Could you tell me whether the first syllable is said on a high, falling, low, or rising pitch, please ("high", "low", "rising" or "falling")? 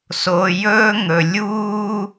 low